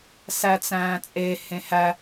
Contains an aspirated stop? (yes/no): no